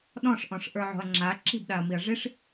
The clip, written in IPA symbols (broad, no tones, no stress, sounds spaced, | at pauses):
ɗ ɔ̃ ʂ ʔ ɔ̃ ʂ ʔ ə˞ ʕ o̤ ɐ̯ ŋ͡ǁ a ǁ i̤ b ɗ a ɐ̯ m i ɐ̯ ʐ i ʂ